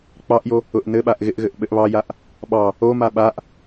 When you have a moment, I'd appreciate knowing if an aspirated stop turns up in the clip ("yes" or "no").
no